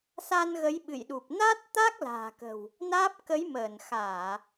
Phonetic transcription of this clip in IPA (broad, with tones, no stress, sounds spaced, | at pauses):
s a˧ n ɣ ə˨˦ j ɓ ɨ̰˧˨ j ɗ u˨˩ p̚ n a˦˥ t̚ t̪ a˦˥ k̚ l a̤ː˨˩ k ə̤˨˩ w | n aː˦˥ p̚ k ə˨˦ j m əː˧˩ n x aː˧˩˨